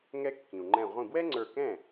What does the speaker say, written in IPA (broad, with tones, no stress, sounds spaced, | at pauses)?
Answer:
ŋ ɛ˥ kː ĩ˩ u̯ ŋ͡ǃ ɛ̃˧˩ ʁʷ ĩ˧˩ b w ɛ˥ ŋ͡ǀ ə˞˧˩ k ɛ̃˥˩